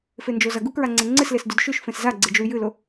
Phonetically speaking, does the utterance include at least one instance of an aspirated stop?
no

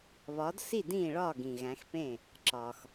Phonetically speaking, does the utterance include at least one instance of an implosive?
no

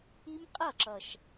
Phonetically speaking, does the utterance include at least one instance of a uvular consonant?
yes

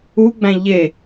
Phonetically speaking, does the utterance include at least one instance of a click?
no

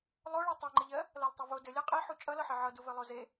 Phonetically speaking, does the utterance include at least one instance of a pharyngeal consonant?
yes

